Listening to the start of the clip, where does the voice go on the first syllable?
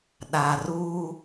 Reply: low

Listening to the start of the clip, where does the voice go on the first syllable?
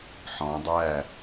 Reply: rising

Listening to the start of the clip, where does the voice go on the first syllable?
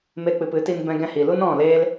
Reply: high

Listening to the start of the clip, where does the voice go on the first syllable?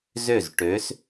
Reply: falling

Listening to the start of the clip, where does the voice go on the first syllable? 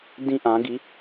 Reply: high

